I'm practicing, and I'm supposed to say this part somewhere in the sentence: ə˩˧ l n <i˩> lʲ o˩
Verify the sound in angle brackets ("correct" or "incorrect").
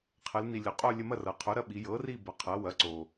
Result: correct